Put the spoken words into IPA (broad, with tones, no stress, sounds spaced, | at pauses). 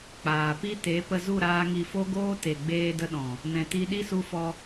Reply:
k͡p aː˨ p i˦ t e˨˦ p ə˧ z u˦˨ ɾ aː˧ ŋ i˨ f o˧ ɡ oː˧ t e˨ ɡ͡b eː˧ d ə˧ ɗ ɔ̃˨ | n ɛ̃˨ t i˧ ɗ i˦ s u˧ f ɔ˧